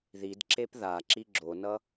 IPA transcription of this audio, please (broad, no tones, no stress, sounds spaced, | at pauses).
ð i d ǁ e p ð a ǁ i ɡ͡ǁ o n ʌ